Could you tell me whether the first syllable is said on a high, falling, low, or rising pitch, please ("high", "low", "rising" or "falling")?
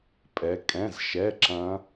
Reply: rising